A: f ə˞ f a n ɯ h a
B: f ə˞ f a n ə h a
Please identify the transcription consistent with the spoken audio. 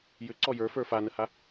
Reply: B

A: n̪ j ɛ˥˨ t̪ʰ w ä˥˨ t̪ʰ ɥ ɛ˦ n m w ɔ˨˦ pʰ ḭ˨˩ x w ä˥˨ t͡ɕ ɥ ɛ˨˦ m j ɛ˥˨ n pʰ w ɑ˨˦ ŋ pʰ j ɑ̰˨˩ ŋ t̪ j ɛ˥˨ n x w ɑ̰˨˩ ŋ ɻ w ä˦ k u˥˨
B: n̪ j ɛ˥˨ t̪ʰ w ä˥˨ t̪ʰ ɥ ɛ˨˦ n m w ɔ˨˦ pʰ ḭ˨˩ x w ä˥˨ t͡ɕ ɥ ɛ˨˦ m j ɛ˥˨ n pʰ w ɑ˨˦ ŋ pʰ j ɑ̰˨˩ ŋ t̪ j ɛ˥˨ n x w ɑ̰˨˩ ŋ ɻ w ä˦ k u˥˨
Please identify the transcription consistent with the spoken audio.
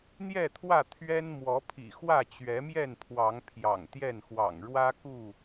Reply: A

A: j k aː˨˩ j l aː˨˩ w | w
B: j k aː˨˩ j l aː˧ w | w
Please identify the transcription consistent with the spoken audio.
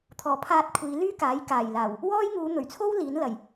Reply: A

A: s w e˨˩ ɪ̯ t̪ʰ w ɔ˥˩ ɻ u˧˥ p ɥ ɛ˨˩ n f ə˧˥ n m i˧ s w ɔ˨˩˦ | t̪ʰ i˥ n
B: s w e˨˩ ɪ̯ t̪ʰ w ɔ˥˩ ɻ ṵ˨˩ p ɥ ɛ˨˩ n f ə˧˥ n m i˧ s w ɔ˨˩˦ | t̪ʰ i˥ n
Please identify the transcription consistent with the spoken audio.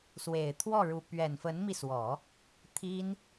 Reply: A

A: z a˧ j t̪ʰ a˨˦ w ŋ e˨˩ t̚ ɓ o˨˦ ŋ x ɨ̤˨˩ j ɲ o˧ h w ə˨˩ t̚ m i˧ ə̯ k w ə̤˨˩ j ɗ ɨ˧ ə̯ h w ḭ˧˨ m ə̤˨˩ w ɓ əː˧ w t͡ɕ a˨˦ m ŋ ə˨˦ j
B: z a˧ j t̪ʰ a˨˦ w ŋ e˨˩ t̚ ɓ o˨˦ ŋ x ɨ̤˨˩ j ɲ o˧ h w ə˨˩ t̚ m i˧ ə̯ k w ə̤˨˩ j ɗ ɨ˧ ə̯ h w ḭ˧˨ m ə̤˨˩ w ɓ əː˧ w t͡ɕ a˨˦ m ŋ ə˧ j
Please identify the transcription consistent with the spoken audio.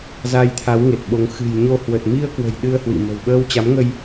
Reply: B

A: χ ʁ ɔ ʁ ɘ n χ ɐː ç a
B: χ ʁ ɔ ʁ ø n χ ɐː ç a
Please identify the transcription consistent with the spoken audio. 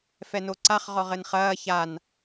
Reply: A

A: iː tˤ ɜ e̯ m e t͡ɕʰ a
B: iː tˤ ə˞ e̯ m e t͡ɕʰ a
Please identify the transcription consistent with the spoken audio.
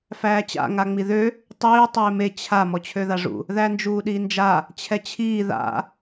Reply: A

